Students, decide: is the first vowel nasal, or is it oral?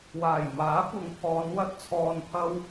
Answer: oral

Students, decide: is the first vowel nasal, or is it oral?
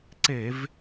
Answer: oral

